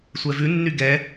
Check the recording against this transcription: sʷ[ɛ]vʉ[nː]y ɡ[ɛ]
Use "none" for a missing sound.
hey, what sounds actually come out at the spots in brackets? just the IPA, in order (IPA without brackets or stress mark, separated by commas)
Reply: ɛ, nː, ɛ